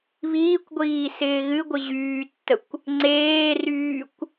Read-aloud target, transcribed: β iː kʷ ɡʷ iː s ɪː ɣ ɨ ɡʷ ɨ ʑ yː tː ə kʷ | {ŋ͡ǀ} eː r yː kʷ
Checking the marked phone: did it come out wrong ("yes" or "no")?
no